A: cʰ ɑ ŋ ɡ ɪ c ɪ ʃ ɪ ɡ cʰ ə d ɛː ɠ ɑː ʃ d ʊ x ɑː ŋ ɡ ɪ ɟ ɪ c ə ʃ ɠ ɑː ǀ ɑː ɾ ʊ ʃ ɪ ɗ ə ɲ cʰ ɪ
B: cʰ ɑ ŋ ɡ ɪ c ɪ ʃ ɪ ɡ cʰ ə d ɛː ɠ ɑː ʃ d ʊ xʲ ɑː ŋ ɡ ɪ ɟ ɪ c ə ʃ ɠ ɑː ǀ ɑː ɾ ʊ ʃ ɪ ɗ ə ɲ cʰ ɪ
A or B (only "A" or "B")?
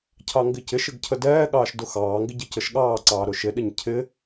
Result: A